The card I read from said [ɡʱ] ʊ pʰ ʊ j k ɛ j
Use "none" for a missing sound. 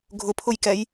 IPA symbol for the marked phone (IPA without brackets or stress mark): ɡʱ